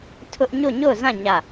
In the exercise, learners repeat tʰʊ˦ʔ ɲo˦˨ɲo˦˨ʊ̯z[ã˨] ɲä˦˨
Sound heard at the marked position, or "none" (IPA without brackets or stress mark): ã˦˨